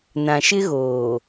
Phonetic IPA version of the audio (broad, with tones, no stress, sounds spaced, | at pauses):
n ã˨ ʃ ɪ˦ ɣ oː˨